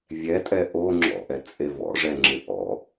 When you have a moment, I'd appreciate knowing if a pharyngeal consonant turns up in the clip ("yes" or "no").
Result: no